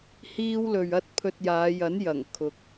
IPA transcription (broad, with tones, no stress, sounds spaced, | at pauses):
h iː˥ w l ɵ˧ ɥ ɐ˥ t̚ pʰ ɵ˧ t̚ j aː˨˧ j ɐ˨˥ n j ɐ˨˩ ŋ kʰ ʊ˨ k̚